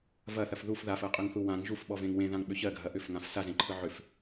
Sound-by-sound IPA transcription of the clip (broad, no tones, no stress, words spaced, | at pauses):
vɐθɐf ðuf ðafɜqʼʏŋθu wãŋ ʒufɓɔvẽŋ wẽðãŋɓʏ çɜɡʱɐ ʔʏfŋãf sazẽǃʰɯ ʕʏf